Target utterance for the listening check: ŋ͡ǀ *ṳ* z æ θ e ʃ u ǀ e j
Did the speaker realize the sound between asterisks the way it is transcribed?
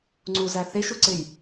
no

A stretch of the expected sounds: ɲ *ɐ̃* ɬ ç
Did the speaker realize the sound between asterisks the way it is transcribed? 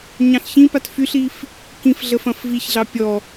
no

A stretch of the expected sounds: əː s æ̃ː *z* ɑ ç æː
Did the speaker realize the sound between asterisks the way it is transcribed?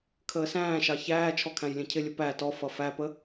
no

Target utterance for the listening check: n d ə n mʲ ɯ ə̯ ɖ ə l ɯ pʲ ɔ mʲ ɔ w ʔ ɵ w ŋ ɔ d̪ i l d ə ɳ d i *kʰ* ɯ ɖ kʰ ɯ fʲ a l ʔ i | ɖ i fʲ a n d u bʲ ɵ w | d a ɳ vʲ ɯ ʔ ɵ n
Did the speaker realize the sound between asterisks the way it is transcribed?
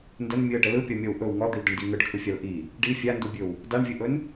no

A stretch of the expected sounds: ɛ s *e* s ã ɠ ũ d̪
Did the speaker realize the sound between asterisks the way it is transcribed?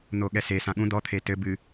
yes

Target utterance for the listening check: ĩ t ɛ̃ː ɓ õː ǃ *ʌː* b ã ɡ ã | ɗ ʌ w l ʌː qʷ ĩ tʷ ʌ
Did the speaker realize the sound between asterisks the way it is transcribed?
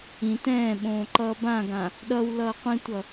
yes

